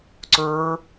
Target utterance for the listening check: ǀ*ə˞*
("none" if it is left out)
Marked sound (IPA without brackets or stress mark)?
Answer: ə˞